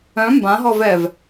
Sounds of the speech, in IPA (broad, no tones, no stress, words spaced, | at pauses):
œ̃ mbãɦɔvɛv